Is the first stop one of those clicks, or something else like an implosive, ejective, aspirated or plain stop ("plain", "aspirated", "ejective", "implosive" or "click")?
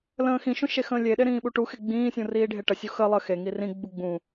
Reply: implosive